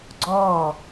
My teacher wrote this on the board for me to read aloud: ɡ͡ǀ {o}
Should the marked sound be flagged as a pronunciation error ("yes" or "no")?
yes